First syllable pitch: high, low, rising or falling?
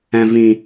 low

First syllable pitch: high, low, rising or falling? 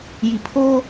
low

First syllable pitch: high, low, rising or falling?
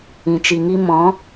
low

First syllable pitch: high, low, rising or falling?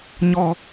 high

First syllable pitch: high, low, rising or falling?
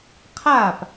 falling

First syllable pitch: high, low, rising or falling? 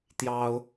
high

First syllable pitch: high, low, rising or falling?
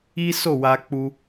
high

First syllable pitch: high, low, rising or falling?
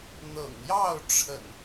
low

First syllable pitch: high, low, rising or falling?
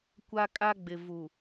high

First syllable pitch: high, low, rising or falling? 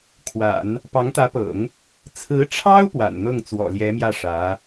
low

